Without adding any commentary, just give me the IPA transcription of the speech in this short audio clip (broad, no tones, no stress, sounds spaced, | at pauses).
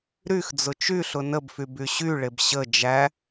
ɾ y x d͡z ʊ t͡ʃ y ɬ ʊ n ə b f y b y ɕ y ɭ e b ɕ ə d͡ʒ æ